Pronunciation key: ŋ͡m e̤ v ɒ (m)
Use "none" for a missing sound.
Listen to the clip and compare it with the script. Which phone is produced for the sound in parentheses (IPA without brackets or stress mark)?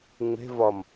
m